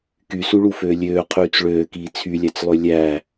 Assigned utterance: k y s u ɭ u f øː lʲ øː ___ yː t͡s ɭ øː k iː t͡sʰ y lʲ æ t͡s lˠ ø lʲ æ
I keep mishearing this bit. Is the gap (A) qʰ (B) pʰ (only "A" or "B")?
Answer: A